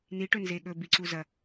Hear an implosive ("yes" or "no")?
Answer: yes